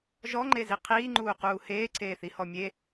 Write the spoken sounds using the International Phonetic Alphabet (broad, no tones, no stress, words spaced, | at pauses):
ʒɔŋ͡ǃezi qʰiːŋ͡ǃuːquː heːǀʰeːθihɔ mʲe